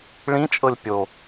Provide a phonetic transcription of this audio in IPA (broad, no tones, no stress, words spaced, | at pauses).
ɭĩt͡ʃʼɤlʲ pʲo